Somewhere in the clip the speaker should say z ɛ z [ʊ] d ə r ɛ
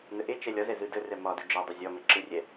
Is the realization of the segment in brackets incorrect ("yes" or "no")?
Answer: yes